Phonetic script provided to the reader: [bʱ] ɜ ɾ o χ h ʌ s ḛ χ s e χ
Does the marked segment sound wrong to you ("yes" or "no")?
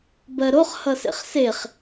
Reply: yes